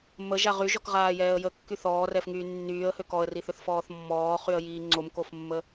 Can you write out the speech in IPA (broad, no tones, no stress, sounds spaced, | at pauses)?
m ə ʒ a ʁ y ʒ ɔ k ʁ aː j ɛː ə̯ j ə kː y θ ɔː r ɛ f ŋ yː nː yː ə̯ h ø k ɔ ə̯ r i θ ʏ θ f ɔː θ mː ɔː χ y ə̯ j iː ŋ͡ǀ o m k o f mː ə